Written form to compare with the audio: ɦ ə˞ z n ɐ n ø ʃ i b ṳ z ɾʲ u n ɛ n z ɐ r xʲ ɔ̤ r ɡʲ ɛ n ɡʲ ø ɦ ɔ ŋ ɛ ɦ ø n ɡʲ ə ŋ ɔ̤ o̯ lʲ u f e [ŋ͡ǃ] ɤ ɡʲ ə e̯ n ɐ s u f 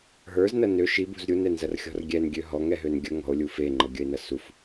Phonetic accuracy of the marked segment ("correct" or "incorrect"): correct